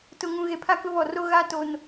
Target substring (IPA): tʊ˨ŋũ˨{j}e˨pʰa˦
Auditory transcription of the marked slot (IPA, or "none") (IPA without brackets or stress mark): ɣ